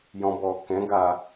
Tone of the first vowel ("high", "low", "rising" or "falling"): low